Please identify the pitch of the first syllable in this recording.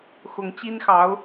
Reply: rising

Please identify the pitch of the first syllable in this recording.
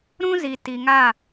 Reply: high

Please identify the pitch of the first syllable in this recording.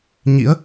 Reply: rising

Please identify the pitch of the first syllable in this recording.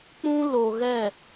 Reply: high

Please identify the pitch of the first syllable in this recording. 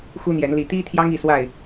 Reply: high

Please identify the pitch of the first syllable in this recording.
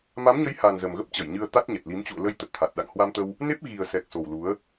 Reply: rising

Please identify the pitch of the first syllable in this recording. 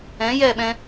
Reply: rising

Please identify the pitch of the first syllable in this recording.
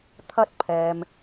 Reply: high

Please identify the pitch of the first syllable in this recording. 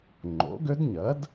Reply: rising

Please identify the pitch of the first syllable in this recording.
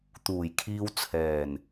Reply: low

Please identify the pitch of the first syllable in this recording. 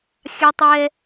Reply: high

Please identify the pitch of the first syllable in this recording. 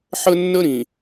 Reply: high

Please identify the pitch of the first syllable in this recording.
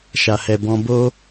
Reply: low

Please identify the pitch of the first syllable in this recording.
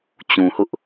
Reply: low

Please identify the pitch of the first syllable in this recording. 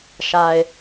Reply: low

